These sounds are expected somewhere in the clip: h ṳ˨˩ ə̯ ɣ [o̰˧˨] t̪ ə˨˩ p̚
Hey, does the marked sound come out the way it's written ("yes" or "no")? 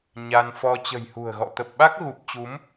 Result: no